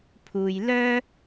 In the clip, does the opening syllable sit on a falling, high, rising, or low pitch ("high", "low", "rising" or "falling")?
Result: low